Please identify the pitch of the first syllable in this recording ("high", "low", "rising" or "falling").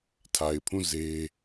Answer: low